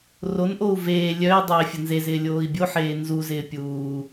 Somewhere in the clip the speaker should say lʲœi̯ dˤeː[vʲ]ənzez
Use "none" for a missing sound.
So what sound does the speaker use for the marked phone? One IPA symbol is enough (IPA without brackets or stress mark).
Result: fʲ